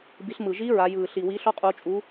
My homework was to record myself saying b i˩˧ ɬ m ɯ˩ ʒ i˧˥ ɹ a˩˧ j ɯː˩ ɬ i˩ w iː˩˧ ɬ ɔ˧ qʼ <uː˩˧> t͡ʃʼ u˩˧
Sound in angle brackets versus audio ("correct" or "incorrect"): incorrect